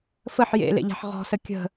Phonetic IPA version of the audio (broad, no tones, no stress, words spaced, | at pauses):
fəħ jḛlḛʎa̤ħ ʁɔ̤sə kʲə̤